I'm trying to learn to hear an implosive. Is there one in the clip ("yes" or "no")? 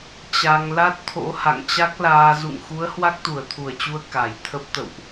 no